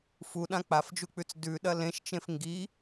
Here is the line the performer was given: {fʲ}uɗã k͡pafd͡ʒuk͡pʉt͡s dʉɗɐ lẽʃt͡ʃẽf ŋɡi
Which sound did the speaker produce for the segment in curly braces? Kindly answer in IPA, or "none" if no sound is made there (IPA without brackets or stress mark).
f